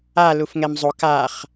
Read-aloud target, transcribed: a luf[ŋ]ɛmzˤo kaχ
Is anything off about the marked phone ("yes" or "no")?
no